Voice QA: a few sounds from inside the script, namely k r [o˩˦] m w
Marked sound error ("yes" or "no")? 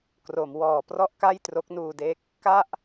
no